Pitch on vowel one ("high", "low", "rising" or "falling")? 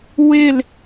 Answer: falling